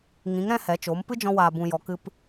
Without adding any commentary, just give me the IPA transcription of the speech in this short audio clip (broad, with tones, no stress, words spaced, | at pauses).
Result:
ŋĩ˨˦ŋɾɛ̃˦ hɛ˨˦t͡ʃo˨˦m pɨ˦d͡ʒɔ̃˧waː˨ bũ˨jɔ˨ kɨ˧p